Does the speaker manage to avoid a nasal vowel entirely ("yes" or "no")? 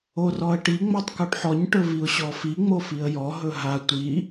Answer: yes